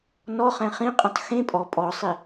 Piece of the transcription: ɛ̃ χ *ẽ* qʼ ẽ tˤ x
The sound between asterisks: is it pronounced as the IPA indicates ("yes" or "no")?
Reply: no